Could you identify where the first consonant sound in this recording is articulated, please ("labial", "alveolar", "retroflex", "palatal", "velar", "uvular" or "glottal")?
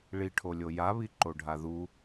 retroflex